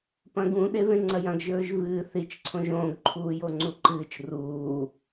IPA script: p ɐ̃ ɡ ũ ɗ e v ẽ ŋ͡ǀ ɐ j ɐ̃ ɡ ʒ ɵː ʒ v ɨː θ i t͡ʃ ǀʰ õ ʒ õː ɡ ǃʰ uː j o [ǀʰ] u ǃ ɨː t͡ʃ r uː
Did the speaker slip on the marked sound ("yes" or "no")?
yes